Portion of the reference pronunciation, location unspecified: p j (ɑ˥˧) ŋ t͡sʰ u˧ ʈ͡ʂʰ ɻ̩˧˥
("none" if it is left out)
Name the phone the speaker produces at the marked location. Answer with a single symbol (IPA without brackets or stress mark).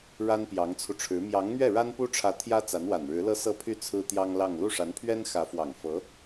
ɑ˧˥